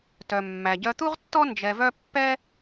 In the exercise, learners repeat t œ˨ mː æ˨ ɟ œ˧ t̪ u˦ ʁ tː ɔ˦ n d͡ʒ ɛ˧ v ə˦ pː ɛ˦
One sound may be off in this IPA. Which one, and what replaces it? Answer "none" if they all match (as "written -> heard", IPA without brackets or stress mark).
ə˦ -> œ˦